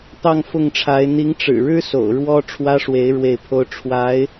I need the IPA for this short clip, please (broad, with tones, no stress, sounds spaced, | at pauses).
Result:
t̪ ɑ˥˧ ŋ f ʊ˥˩ ŋ ʈ͡ʂʰ a˧˥ ɪ̯ n̪ i˧˥ ŋ ʈ͡ʂ ɻ̩˨˩ ɻ ɻ̩˥ s o̰˨˩ ʊ̯ ɻ w ɔ˥ ʈ͡ʂʰ w ä˥ ʂ w e˧˥ ɪ̯ ɻ w e˥˩ ɪ̯ pʰ o˥ ʊ̯ ʈ͡ʂʰ w a˧˥ ɪ̯